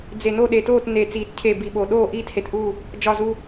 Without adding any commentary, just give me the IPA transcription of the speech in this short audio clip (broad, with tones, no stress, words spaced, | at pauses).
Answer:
d͡ze˨˩no˥˨ɗe˨˩toː˥˨t ne˨˩t͡siː˨˩t cʰe˨˩ bi˨˩ɓo˨˩ ɗoː˥˨ ʔiː˥˨the˨˩tʔuː˥˨ | d͡ʒɒ˨˩zu˨˩